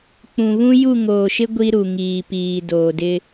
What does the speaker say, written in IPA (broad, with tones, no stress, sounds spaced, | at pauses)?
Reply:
k͡p ũ˨ β ũ˦ j u˦˨ ŋ oː˨ ʃ ɪ˦ ɡʷ i˦ ɾ u˨ ŋ iː˨ p iː˨ d oː˨ d ɪ˦